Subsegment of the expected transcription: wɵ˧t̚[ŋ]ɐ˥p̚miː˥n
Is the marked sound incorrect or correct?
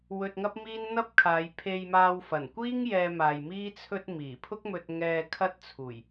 correct